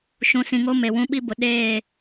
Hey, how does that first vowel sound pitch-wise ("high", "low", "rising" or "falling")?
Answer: low